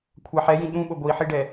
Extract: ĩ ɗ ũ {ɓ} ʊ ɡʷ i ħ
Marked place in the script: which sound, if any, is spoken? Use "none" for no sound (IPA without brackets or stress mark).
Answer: ɓ